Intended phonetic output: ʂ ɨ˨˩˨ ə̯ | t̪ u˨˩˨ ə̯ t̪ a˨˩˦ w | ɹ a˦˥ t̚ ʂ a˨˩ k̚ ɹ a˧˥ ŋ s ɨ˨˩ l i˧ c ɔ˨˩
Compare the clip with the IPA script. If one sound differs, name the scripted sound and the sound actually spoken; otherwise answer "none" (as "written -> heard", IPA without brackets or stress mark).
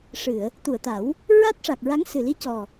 none